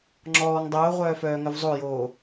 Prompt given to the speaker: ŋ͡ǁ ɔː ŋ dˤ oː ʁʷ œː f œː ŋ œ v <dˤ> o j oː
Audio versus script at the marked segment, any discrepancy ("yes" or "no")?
yes